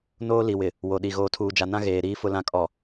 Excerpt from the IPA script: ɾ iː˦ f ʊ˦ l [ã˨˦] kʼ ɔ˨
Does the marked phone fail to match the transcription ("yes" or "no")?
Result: yes